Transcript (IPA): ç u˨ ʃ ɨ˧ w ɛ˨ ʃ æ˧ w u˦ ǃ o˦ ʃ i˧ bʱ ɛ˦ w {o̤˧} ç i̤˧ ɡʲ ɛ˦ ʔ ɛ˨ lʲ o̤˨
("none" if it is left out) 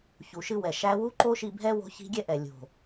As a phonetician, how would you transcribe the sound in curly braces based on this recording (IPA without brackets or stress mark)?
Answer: o̤˧